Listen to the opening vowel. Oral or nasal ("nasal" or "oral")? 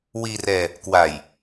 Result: oral